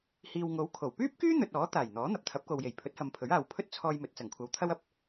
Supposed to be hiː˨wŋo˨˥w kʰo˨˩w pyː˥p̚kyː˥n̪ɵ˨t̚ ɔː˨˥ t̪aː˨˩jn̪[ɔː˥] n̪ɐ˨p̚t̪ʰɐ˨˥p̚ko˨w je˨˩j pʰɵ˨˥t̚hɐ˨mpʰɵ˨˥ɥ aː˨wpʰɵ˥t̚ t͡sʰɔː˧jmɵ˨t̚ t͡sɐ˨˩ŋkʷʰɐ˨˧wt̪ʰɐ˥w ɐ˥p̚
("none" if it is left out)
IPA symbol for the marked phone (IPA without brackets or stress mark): ɔː˨˥